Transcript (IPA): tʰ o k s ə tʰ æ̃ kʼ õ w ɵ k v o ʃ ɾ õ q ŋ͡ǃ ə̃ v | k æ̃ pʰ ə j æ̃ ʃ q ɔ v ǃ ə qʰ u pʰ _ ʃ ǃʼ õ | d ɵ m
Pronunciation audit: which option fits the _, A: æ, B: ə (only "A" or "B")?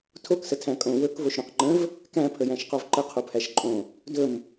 A